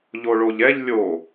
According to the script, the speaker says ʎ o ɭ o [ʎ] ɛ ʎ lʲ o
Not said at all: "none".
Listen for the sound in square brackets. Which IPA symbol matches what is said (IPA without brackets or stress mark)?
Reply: ʎ